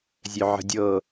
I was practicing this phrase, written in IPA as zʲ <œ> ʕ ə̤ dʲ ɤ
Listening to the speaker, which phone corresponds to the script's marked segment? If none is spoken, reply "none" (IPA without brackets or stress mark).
œ